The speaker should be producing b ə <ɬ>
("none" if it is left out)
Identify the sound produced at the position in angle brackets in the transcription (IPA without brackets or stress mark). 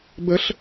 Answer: ɬ